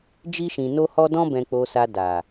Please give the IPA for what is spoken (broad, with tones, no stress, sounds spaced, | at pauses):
d͡ʒ i˧ ʃ ĩ˨ n o˧ h ɔ˧ d ɔ̃˧ b ɛ̃˨ k͡p o˨ s a˨ d a˨